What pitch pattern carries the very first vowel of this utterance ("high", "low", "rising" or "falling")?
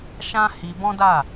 high